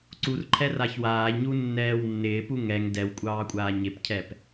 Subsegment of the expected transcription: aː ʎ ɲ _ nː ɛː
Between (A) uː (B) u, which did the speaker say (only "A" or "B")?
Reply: B